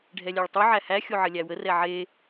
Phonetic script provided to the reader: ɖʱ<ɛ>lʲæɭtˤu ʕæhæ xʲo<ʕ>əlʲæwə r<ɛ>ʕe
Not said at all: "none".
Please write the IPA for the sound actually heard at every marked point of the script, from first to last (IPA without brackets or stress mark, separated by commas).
ɛ, ʕ, ɛ